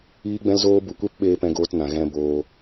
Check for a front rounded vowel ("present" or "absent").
absent